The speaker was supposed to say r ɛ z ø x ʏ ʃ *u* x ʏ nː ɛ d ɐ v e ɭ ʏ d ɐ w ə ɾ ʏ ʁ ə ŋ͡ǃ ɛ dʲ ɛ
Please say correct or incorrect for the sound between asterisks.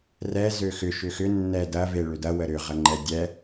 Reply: incorrect